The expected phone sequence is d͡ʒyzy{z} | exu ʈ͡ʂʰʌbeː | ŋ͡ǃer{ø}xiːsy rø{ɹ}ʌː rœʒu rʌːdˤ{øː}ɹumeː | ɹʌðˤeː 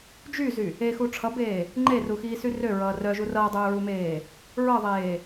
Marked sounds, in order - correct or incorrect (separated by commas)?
incorrect, incorrect, correct, correct